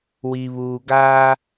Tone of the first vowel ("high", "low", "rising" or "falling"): low